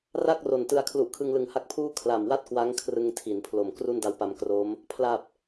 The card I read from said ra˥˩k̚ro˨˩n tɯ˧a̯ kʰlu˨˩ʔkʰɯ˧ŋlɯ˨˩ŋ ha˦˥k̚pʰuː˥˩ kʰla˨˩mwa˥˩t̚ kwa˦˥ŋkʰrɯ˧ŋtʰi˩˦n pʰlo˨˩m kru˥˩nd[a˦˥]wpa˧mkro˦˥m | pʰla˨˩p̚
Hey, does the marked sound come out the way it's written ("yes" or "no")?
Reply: yes